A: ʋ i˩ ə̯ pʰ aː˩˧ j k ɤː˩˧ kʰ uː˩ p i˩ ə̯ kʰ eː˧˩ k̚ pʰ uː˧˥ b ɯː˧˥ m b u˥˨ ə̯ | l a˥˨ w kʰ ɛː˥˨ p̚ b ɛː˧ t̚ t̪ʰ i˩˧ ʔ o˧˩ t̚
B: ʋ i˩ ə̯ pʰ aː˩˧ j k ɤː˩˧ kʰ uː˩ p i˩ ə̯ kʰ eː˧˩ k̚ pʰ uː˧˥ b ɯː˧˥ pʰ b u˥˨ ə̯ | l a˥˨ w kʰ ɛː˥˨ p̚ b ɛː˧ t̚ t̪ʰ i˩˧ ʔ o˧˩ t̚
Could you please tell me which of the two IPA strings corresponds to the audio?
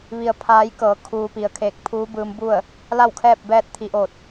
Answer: A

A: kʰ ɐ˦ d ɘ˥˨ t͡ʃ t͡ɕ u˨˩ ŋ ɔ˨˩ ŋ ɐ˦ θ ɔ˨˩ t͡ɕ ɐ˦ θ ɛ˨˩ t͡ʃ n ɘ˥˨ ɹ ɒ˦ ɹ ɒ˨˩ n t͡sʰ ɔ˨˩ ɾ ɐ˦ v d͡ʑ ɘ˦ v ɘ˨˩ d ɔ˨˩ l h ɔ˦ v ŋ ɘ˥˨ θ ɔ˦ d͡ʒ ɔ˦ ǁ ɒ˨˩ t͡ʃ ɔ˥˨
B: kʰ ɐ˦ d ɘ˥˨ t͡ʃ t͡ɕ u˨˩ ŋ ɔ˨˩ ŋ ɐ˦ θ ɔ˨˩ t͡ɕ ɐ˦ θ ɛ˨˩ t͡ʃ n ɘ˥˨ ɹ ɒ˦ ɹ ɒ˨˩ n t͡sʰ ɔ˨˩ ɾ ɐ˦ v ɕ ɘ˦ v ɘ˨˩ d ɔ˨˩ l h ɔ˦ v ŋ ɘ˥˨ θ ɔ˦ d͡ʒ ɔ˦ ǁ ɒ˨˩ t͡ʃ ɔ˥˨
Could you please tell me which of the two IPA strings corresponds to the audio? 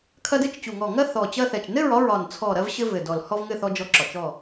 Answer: B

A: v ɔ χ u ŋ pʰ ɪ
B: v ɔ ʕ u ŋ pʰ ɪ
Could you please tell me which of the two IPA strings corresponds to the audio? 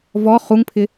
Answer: A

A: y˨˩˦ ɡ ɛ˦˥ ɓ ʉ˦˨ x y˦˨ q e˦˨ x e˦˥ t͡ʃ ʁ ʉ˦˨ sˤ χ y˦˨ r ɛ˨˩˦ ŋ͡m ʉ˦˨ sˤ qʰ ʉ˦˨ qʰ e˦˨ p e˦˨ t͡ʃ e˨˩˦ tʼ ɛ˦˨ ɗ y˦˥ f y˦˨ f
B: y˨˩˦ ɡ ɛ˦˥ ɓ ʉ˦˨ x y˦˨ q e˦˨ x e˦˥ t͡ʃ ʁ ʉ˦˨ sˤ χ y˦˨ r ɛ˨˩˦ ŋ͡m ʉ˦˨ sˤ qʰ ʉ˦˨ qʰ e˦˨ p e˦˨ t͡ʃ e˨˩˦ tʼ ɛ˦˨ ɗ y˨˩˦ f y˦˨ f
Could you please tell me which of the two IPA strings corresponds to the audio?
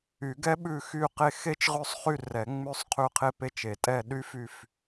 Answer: A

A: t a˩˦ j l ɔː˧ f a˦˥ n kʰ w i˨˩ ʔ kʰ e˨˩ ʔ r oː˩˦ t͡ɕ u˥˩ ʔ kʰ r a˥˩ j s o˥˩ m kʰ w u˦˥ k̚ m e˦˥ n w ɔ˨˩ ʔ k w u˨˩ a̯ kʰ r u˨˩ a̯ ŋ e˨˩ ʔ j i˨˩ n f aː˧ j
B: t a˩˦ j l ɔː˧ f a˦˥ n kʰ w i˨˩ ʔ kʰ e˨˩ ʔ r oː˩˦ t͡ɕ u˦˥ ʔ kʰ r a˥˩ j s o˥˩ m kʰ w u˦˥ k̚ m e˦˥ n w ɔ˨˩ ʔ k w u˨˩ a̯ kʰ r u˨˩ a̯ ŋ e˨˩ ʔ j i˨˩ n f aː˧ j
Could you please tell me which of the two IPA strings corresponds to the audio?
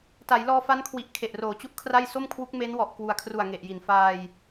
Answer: B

